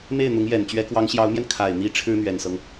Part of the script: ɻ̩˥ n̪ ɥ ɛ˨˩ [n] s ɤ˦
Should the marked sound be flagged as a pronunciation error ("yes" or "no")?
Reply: no